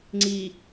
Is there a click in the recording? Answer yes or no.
yes